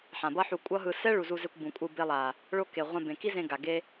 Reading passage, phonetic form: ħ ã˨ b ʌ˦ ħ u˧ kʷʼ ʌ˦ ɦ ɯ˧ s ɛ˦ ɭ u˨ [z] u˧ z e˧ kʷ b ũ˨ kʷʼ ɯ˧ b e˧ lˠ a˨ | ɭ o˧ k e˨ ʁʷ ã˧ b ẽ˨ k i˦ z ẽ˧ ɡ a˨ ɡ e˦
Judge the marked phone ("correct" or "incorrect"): correct